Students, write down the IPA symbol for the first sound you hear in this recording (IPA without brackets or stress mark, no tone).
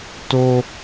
t